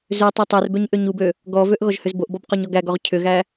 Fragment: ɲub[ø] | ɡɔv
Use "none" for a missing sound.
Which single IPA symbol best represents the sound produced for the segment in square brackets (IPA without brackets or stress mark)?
ø